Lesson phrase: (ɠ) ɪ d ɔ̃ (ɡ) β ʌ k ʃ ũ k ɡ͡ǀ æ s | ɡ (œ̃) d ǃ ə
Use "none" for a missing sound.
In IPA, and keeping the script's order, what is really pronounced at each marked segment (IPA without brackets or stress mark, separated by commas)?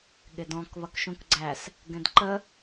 ɠ, k, ɛ̃